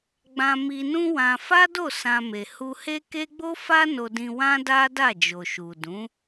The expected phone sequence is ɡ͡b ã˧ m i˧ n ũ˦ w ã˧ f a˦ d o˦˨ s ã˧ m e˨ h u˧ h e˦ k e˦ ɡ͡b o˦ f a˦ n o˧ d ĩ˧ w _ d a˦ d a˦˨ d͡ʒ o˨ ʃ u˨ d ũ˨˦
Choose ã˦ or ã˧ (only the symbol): ã˦